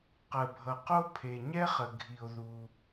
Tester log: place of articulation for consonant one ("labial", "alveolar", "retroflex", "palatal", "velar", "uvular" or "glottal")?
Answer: uvular